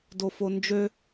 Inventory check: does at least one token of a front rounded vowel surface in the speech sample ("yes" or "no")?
yes